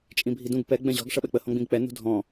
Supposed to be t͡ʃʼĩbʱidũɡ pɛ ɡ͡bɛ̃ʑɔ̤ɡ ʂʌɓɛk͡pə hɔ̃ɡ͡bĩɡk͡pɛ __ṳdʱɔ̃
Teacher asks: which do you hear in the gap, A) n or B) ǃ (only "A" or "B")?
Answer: A